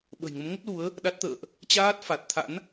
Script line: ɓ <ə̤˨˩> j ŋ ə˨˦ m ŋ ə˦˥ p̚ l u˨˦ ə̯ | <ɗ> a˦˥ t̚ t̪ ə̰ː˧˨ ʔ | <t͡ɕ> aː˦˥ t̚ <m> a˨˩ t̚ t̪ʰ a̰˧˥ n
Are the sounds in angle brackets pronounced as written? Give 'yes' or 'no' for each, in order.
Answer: yes, yes, yes, no

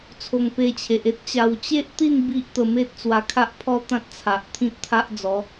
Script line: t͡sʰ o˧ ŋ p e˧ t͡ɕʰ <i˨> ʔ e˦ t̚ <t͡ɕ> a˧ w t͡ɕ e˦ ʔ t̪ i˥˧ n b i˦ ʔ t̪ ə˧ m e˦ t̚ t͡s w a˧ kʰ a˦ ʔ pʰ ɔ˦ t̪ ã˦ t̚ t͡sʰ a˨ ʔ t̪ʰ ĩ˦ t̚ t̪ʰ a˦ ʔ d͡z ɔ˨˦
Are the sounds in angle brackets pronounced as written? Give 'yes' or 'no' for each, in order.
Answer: no, yes

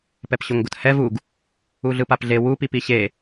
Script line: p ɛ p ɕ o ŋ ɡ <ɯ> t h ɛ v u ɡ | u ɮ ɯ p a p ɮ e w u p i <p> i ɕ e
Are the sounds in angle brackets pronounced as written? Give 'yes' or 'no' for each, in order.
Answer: no, yes

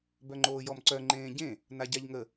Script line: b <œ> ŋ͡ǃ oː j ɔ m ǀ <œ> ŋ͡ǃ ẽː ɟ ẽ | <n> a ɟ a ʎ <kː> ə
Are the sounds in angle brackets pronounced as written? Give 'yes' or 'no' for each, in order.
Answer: yes, yes, yes, no

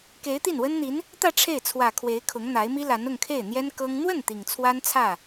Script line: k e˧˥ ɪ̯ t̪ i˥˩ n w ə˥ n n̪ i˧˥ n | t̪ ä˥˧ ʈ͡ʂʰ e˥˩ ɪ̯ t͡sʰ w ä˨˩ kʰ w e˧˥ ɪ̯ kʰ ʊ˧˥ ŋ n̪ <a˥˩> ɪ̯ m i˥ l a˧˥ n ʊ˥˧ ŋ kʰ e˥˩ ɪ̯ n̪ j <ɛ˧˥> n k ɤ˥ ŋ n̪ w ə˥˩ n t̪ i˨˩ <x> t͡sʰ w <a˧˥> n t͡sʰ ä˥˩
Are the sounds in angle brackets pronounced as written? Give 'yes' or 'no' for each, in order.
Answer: no, no, no, no

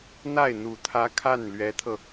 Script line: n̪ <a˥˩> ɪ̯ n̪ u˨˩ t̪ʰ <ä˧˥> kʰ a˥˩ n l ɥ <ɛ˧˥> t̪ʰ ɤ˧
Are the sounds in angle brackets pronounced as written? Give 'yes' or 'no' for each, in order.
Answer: yes, yes, yes

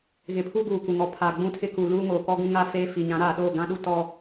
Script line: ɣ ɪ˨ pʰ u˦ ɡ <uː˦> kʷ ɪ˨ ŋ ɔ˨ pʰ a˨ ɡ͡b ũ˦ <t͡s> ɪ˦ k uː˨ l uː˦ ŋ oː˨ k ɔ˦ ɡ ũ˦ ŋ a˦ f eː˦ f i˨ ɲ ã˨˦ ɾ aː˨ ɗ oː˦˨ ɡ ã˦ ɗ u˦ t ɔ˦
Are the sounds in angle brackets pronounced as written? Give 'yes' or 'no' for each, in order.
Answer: no, no

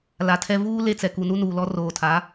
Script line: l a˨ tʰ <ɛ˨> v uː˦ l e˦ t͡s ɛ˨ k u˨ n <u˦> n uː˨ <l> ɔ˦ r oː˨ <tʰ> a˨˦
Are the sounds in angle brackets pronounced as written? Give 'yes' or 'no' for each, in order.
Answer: no, yes, yes, yes

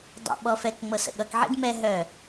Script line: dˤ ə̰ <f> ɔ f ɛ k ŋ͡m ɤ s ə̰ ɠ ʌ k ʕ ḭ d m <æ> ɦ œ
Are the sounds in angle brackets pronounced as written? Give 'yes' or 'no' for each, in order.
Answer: no, no

